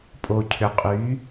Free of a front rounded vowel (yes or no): no